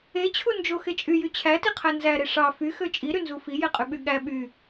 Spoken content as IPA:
e t͡ɕʰ u n d͡ʒ o x e t͡ʃʼ y j y t͡ɕʰ æ t i qʰ æ n z æ ɾ e ʂ ɑ f y x ø t͡ʃʼ i ɾ y n z u f i j e qʼ y ɓ y ɠ æ ɓ y

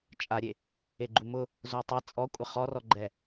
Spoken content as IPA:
t͡ʃʼ a ɾʲ e | e ɡ͡ǃ u m ʊ | z o tˤ ɛ t͡sʼ ɔ kʷʼ ɪ χ ɔ r ɔ ɡ͡ǃ ɛ

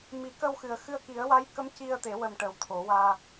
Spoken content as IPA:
m i˨˩˦ k ə˧ w x ɨ˨˩ ə̯ x ɨ˧ ə̯ k i˨˩˦ ə̯ w a˧˥ j k ə˧˥ m c i˧ ə̯ t̪ e˨˩˦ w ə˨˩ m ʈ ə˨˩ w t̪ʰ o˨˩˦ w aː˧

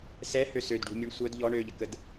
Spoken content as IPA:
s ɛ h ø s ø d ɖ ṳ mʲ u ɳ sʷ œ d ʎ ɔ ɳ ø ʎ ə k ə d

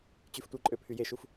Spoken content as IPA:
t͡ɕ y f tʷ i ǃʼ ø pʰ y j e ʃ u f

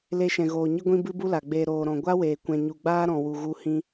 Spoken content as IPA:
l e˦ ʃ ɛ̃˨ ɣ oː˨ ɲ ɨ˦ ɡʷ ĩ˦ b ɨ˦ b u˦ l a˨ ɡ͡b eː˧ ɾ oː˨ ɾ ɔ̃˨ ɡʷ a˦ w eː˨ kʷ ɛ̃˨ ɲ u˨ ɡ͡b aː˦ ɾ ɔ̃˨ w u˨ ɣ u˧ h ĩ˧

